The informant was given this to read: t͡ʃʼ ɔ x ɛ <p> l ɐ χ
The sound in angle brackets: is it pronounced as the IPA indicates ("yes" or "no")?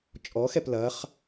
yes